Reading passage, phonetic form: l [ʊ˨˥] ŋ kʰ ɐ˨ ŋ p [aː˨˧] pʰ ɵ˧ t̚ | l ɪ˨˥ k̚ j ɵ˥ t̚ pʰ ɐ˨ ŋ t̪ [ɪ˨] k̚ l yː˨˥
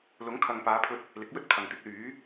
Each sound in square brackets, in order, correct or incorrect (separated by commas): correct, correct, incorrect